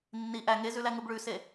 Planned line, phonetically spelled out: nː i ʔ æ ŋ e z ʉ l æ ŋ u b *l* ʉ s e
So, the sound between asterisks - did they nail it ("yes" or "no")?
no